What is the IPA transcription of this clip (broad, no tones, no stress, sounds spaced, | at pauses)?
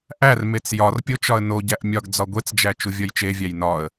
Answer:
ʔ æ r m e t͡s j ɒ r pʲ o t͡ʃ ɒ ə̯ n o ɟ æ ʔ mʲ ɒ ɡ d͡z ɒ ɡʷ e t͡s d͡ʒ æ t͡ʃ u vʲ ɒ j t͡ʃ e vʲ æ j n ɒ ə̯